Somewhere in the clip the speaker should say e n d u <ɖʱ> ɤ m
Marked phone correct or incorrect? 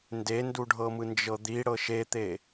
correct